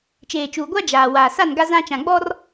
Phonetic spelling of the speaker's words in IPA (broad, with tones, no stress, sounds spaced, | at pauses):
t͡ʃ eː˨ t͡ʃ uː˨ ɡʷ a˦ d͡ʒ aː˨ w aː˨ s a˦˨ n ɡ a˦ z ã˦ t͡ʃ ã˨ ɡ͡b ɔ˦ r